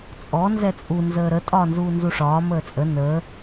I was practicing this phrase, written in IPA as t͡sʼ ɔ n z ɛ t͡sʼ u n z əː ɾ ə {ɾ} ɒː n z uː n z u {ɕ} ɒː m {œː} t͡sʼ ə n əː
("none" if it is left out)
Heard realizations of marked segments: tʼ, ʂ, əː

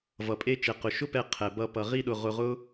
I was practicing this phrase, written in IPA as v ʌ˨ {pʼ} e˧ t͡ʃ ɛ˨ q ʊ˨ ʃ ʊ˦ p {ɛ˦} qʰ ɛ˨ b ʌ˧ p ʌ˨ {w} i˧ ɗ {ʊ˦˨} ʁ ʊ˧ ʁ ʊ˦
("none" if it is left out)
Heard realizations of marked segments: pʼ, ɛ˧, ʁ, ʊ˨

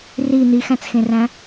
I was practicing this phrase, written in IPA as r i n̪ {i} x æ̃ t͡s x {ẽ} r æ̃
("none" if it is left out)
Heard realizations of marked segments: i, ẽ

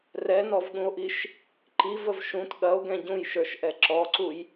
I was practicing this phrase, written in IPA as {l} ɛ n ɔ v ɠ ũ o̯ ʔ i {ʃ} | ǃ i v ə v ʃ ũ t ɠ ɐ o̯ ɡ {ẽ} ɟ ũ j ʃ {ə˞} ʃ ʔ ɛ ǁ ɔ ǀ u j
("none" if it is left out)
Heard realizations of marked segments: r, ʃ, ɛ̃, ə˞

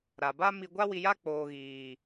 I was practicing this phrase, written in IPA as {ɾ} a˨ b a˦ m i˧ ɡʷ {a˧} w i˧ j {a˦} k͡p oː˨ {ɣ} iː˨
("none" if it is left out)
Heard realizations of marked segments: ɾ, a˦, a˦, ɣ

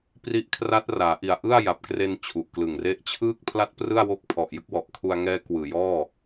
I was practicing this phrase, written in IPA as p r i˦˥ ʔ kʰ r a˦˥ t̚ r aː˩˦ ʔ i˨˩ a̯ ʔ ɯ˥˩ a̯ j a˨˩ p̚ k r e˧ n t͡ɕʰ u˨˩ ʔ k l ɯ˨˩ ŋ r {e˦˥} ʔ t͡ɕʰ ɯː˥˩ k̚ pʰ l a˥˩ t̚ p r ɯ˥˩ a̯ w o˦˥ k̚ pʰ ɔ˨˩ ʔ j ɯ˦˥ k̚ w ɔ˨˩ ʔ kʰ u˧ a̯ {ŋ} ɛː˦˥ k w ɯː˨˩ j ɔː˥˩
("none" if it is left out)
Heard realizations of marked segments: e˦˥, ŋ

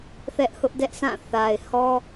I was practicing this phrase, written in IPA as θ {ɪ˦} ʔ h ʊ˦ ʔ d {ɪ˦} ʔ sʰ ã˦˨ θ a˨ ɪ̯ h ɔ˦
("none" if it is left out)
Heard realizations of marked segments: ɛ˦, ɛ˦

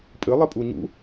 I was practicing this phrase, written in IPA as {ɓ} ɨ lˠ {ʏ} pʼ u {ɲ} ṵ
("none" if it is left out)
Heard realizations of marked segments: pʼ, ɨ, ɲ

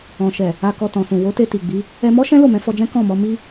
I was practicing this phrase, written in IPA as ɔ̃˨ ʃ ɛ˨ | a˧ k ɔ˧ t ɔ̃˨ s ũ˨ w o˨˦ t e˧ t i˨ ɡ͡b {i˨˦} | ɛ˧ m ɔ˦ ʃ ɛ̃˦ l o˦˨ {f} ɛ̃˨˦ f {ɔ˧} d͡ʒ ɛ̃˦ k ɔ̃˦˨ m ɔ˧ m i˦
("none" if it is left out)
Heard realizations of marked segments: i˨˦, m, ɔ˧

